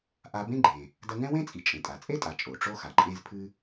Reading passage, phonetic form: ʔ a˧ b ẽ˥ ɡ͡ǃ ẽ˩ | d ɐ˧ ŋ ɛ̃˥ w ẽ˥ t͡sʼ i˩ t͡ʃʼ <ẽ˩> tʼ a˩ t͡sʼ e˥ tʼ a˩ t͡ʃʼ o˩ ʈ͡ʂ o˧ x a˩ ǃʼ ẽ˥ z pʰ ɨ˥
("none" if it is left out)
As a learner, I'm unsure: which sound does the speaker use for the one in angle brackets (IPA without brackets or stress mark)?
ẽ˩